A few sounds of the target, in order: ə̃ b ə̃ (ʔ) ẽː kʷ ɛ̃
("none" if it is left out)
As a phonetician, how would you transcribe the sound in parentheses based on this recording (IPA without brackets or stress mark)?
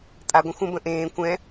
ʔ